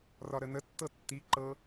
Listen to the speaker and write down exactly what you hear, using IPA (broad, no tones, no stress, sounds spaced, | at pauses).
r ɒ ɾ ə n ə tː ɤ tː i ǃ ɤ